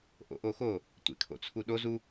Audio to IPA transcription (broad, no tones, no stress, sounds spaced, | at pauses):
ʔ o̰ ʔ o x o | tʷ ḛ kʰ o̰ t͡sʰ u ɗ o z u